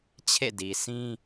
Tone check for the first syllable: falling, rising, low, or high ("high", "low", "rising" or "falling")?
falling